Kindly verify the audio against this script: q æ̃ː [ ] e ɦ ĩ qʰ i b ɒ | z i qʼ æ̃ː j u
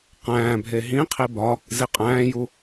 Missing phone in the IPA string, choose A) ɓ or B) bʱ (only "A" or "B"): B